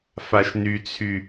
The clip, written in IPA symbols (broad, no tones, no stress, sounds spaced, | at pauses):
f a ʃ n y t͡sʰ y